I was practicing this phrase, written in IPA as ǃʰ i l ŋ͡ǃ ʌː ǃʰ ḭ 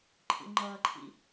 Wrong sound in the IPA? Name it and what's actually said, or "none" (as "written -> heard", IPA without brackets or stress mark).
i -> ḭ